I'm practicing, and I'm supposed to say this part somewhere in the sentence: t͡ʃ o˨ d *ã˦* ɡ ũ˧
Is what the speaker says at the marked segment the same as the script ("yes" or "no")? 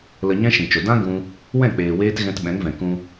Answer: yes